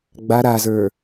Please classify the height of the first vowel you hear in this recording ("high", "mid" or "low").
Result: low